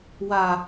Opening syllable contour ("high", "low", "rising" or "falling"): low